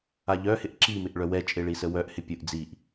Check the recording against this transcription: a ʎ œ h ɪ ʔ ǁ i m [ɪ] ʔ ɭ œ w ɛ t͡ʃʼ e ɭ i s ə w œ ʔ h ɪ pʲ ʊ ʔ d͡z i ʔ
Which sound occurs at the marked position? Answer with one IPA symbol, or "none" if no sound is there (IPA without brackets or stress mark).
ɪ